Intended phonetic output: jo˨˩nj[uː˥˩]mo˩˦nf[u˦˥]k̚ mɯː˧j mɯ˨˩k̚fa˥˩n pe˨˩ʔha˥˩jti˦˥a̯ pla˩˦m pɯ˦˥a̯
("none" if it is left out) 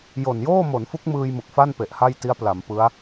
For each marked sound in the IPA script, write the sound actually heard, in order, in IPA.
oː˥˩, u˦˥

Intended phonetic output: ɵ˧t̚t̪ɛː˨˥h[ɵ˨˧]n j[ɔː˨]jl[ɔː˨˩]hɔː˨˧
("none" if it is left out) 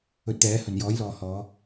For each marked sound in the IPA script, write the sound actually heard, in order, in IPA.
ɵ˨˩, ɔː˨˥, ɔː˨

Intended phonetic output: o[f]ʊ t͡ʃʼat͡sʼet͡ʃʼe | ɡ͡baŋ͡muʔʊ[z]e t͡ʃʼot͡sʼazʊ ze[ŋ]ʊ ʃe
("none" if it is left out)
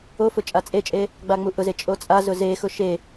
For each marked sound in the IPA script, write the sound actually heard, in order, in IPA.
f, z, x

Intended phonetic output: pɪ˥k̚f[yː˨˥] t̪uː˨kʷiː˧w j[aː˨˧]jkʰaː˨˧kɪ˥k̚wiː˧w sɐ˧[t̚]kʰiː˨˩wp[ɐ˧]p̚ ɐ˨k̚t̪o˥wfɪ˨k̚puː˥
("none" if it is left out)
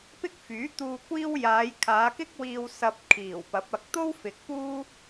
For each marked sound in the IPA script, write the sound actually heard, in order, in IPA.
yː˨˥, aː˨˧, p̚, ɐ˨˥

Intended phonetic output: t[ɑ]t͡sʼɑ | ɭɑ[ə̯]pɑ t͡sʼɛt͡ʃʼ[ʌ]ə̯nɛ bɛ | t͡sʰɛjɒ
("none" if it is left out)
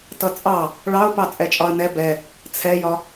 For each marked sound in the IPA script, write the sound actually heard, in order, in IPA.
ʌ, ʊ̯, ɒ

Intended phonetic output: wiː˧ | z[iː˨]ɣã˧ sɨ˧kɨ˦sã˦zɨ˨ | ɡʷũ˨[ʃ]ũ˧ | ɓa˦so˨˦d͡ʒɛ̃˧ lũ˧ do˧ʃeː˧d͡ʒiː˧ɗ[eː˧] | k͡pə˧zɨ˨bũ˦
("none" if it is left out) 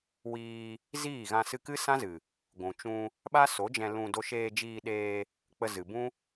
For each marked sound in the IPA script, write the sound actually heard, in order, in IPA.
iː˦˨, t͡ʃ, eː˧

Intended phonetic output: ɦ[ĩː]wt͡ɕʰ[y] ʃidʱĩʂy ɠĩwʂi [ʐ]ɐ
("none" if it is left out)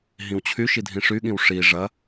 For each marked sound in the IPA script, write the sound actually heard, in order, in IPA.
ĩ, y, ʐ

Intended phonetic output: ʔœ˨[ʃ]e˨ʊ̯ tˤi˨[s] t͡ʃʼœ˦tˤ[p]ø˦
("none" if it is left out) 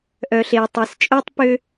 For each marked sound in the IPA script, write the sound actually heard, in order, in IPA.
ɬ, s, p

